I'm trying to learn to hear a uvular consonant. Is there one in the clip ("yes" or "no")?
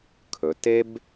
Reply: no